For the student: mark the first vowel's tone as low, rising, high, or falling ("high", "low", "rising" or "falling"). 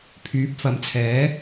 rising